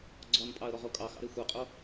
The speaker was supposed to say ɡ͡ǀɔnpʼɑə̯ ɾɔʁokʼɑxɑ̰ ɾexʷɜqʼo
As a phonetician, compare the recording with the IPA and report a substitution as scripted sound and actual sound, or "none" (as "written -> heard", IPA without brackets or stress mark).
none